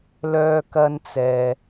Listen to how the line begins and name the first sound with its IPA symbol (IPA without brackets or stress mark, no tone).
l